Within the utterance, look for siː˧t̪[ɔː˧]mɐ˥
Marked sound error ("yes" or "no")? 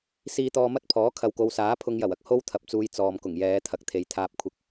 no